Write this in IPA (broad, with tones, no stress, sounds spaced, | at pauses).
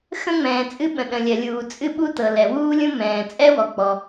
x ə̃˥ ŋ͡m ɛ̃ː˩ t͡sʼ ɨ˥ ɓ ə̃˩ ɗ ə̃˩ lʲ ɜ˩ lʲ uː˩ t͡sʼ ɨ˥ ɓ u˥ t ɤ˩ l ɛ˩ w uː˥ lʲ ũ˥ m ɛ̃ː˩ t͡sʼ ɛ˥ w ɔ˩ k͡p ɔ˩